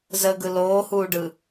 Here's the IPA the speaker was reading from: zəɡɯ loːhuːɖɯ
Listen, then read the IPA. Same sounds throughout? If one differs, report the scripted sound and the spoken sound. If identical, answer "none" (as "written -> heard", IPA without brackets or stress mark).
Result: none